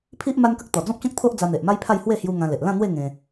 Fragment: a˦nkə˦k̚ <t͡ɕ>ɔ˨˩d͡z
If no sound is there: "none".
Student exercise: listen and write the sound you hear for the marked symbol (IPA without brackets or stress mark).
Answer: t̪